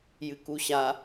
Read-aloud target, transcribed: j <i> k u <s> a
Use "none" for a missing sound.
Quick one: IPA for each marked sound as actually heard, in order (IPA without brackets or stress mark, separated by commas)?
ɨ, ɕ